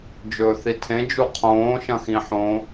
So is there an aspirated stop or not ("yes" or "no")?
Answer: yes